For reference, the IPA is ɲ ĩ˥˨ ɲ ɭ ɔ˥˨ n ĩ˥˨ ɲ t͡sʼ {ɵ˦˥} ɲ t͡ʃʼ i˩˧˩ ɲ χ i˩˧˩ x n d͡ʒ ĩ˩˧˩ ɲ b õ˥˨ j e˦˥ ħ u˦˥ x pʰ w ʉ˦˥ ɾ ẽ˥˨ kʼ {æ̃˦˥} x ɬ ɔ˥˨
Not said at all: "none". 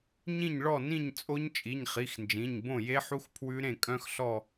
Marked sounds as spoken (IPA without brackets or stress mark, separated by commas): o˦˥, œ̃˦˥